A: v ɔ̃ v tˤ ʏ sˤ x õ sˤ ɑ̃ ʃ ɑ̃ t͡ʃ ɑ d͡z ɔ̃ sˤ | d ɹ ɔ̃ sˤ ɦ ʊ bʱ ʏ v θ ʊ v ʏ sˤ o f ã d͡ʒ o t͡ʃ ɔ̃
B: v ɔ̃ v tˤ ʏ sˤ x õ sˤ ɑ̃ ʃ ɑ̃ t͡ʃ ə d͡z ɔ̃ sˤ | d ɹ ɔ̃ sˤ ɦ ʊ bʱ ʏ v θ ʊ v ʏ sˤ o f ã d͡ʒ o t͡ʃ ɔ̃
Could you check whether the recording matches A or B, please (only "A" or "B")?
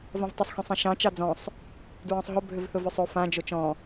A